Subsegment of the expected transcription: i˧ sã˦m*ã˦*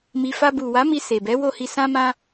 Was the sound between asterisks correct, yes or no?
yes